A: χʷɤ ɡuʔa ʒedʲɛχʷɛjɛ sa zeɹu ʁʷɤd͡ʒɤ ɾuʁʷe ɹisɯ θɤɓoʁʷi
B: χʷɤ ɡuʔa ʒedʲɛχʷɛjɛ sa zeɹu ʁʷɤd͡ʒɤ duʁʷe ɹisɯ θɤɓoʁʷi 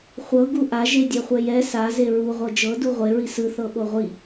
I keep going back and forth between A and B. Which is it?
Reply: B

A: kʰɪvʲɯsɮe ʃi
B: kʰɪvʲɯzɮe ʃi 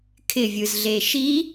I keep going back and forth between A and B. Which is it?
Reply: B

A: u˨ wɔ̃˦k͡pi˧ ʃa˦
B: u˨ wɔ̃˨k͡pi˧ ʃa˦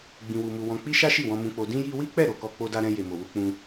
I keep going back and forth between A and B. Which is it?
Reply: B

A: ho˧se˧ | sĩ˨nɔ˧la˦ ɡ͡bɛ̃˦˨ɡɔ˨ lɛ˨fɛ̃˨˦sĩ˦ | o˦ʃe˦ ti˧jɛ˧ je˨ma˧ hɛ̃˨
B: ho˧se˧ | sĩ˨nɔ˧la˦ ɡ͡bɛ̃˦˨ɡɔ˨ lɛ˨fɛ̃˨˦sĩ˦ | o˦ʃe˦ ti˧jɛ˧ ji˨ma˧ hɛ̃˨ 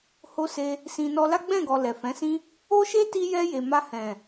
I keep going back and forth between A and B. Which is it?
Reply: A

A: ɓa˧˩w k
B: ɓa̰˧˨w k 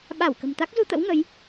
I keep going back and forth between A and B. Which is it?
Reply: A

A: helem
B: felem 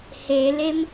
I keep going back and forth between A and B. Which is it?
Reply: A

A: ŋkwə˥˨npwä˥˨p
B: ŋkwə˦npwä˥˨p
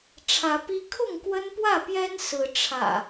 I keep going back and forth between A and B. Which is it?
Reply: B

